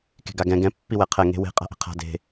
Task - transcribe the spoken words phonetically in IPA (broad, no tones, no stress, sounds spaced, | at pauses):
k e̤ ɡ a ɡ ɛ̃ ɡ ɛ̃ pː i w ɛ qʰ ɛ ŋ e̤ w e̤ qʼ a̤ ʔ e̤ qʰ a̤ d e̤